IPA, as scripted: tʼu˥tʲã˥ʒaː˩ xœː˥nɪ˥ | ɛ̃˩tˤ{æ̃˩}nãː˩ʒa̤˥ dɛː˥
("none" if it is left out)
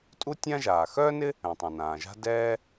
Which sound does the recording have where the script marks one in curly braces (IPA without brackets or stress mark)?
ã˩